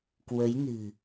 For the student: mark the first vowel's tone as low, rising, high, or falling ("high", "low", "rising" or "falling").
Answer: rising